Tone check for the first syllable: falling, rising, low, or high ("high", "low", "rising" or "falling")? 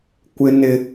high